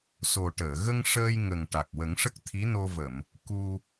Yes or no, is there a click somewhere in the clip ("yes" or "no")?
no